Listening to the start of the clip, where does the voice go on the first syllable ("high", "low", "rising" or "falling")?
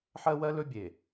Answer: high